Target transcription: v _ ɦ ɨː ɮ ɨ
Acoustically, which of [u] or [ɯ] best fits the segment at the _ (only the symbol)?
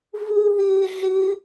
u